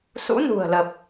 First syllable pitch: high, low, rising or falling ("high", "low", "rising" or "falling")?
rising